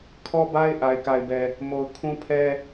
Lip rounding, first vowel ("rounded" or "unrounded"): rounded